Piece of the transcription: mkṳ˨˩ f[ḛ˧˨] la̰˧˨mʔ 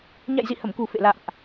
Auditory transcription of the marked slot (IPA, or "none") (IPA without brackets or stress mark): ḛ˧˨